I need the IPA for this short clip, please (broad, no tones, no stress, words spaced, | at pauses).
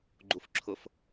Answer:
ɡ͡ǃufǁʰʊf